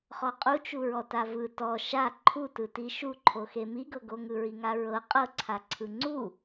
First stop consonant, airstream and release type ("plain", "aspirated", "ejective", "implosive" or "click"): ejective